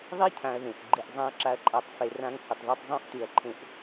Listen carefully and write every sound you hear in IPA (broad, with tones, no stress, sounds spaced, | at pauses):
ðˤ i˥ cʰ ã˨ ɐ̯ ð ẽ˩ ʔ ɡ͡ǃ ɨ˨ ʔ zˤ ã˦ ɐ̯ ǁ a˦ ɐ̯ ǃʼ a˨ tˤ f e˨ r ã˦ ŋ h u˩ tˤ ð ʉ˦ tˤ zˤ ũ˥ ʔ t ʉ˩ ɐ̯ ǃʰ ẽ˦ ʔ